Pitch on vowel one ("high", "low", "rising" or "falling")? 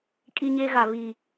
high